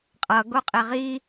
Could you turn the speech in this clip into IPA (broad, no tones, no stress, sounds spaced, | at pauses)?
qʼ ʌ ɡ o qʼ e ʁ i